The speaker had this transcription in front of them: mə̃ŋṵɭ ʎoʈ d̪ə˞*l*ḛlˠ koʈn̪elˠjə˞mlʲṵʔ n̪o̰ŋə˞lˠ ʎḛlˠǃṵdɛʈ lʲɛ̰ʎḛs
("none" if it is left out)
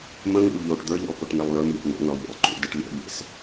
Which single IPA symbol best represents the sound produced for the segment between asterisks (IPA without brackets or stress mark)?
ʎ